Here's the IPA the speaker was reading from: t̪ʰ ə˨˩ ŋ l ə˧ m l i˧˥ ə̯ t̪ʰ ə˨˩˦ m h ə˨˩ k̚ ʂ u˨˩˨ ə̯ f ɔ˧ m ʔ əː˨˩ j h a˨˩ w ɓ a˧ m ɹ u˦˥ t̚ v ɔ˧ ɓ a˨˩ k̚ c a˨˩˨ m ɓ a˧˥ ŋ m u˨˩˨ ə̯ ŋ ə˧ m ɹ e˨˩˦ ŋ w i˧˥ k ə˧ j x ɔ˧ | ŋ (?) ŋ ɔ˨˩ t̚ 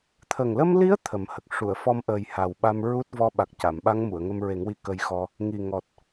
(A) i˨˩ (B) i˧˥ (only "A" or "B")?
A